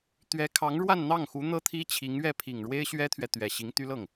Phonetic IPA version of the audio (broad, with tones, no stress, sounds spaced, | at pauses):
t̪ ɥ ɛ˧˥ kʰ ɑ˧˥ ŋ ɻ w a˥˧ n n̪ ɑ˥˩ ŋ x u˧˥ n̪ ɤ˥ t̪ʰ i˥ t͡ɕʰ i˧˥ ŋ ɥ ɛ˥˩ pʰ i˨˩ ŋ ɻ w e˥ ɪ̯ ɕ ɥ ɛ˥ t̪ʰ ɥ ɛ˨ t̪ ɥ ɛ˨˩ ɕ i˧˥ ŋ t̪ y˥ l ɤ˥˩ ŋ